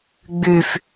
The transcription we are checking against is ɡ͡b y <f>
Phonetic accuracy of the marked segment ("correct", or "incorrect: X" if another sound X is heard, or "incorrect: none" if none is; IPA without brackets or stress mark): correct